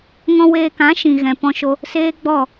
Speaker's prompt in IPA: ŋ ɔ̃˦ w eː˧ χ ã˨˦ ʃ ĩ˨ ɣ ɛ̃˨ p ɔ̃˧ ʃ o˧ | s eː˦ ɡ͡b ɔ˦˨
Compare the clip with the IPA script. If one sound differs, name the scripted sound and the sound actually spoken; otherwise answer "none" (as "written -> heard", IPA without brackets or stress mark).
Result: χ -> k